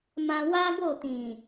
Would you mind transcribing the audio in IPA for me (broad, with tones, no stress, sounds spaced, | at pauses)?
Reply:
m ã˧ w a˦ ɡ o˦˨ t ĩ˨